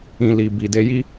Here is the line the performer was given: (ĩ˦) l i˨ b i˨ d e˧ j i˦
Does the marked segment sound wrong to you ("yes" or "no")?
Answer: yes